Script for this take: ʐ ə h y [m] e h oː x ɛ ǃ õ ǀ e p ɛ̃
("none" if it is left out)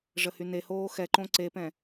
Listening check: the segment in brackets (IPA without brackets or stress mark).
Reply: n